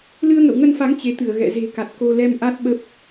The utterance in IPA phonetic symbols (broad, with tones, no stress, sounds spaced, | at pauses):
l ɨ˧ ə̯ ŋ ə̰˧˨ w ŋ ə˧ n f a˨˦ ŋ t͡ɕ e˨˦ t̪ ɨ˧˩ ə̯ ɣ ɛ̰˧˨ z e̤˨˩ k a˨˩ t̚ k o˧ l ɛ˧ m ʔ a˦˥ t̚ ɓ ə˦˥ p̚